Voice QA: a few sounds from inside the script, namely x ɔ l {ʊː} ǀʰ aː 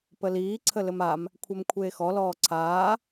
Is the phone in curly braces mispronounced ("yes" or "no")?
yes